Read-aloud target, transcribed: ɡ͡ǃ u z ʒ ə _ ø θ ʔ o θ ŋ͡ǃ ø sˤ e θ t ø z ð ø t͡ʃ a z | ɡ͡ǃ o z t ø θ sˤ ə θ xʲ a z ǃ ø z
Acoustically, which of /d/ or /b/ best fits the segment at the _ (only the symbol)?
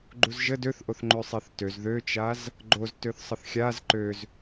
d